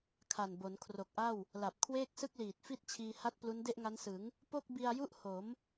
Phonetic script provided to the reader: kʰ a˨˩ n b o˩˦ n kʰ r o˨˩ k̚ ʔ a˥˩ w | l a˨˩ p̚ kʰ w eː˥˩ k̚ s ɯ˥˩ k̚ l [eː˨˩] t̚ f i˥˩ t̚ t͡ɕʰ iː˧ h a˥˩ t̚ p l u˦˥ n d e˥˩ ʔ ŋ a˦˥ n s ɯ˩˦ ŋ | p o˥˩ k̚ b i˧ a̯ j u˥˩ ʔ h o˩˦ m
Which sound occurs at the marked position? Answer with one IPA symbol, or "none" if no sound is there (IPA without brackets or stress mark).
iː˨˩